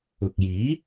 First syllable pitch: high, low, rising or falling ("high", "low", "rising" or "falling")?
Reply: low